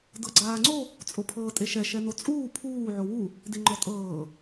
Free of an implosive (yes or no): yes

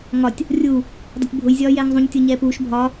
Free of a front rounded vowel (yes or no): yes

